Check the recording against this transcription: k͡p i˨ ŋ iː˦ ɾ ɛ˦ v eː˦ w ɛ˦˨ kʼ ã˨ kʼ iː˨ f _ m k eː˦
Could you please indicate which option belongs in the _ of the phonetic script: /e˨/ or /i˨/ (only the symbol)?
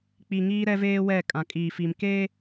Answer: i˨